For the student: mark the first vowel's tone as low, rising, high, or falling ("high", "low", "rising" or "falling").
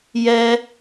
high